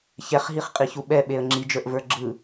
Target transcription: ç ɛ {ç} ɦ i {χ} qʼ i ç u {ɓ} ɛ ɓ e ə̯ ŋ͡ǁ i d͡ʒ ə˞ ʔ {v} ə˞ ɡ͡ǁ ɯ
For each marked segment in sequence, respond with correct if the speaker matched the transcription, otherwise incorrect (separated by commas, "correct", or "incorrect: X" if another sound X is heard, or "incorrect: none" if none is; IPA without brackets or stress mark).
incorrect: χ, correct, correct, correct